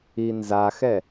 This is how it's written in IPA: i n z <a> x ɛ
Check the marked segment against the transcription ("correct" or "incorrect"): correct